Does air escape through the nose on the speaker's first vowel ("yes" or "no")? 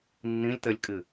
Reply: yes